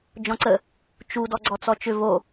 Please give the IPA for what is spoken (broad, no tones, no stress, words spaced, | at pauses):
d͡ʒɔ̃ǀə | t͡ʃu dɔɡ͡ǀɔt͡sɔt͡ʃʏ vo